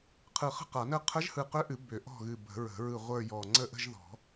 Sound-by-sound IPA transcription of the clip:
qʰ ɯ˧˩ χ ə̤˥˧ q a˨˩˦ n ə˥˩ qʰ ə˧˥ ʒ h ɯ˧˩ q ʏ˧˥ ʔ ɨ˨˩˦ b ʏ˨˩˦ ʔ ɔ̤˥˩ ɣ ɨ˧˩ b ə̤˨˩˦ ɹ ə̤˨˩˦ ɹ ɯ˧˩ ʁʷ ə˞˥˧ j ɔ˧˩ ŋ͡ǀ ə˥˩ ʔ ə̤˥˧ ʒ ð ɔ̤˨˩˦

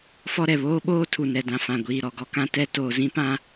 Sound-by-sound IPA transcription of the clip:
f ɔ˦ ɾ ɛ˨ β oː˦ ɓ oː˦ tʰ u˨ n ɛ˨ d ã˨ f ã˨ ɡʷ iː˨ ɾ ɔ˨ ɡ ɔ˦ k ã˦ t ɛ˦ t oː˨ z ĩ˦ p ã˦

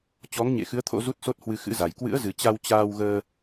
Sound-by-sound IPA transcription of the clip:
t͡ɕ ɔ˨˦ ŋ ɲ ḛ˧˨ x ɨ˨˦ ə̯ t̪ʰ o̰˧˥ z u˦˥ t̚ s o˦˥ t̚ h w ɨ˧ x ɨ̰˧˥ z a˨˩ j k w ɨ̰˧˥ ə̯ z ɨ˨˩ t͡ɕ a˧ w t͡ɕ aː˧ w ɣ əː˧

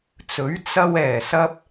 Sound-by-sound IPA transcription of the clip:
t͡s ɵ˨˥ ɥ t͡s ɐ˧ w ɛː˨˩ s ɐ˧ p̚

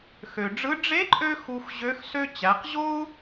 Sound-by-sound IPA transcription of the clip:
x ø˩ ɖ͡ʐ ɯ˧˥ ɖ͡ʐ e˧˥ ǃʼ ø˧ x u˧ x ʑ ø˧˥ x s ø˥ t͡ɕ æ˩˧ q ʑ o˥ u̯

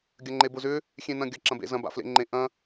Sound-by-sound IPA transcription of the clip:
ɡʲ ɐ ŋ͡ǃ e b ʊ z ʏ | xʲ ẽ n ɐ̃ ɡʲ ɐ ǁ ɐ̃ b ḛ z ɐ̃ b a̰ f l ḛ ŋ͡ǃ ẽ ʔ ɐ̃

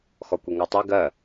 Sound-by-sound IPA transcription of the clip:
x ɔ kʷ i ŋ ɔ tˤ i ɡ ɜ

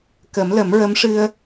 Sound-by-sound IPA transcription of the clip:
k ə˨˩˦ m l ə˨˩˦ m ɹ ə˧˥ m ʂ ɨ˧ ə̯

